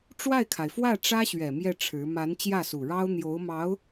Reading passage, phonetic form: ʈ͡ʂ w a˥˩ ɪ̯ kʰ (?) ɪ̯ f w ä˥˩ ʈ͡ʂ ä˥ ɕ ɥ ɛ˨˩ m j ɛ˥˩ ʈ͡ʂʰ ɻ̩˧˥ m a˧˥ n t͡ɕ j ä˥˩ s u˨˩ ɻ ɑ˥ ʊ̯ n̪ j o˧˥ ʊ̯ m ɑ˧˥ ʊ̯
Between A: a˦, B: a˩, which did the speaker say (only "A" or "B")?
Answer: B